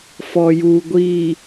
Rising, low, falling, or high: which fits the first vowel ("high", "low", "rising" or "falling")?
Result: low